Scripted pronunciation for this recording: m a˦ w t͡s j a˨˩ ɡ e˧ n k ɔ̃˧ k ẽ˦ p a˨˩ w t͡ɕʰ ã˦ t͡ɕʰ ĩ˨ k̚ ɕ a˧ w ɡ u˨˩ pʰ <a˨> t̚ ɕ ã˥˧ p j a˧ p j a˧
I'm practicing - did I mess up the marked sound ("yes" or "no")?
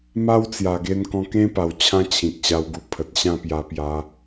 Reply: yes